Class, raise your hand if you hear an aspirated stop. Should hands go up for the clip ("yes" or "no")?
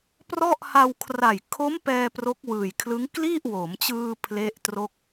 yes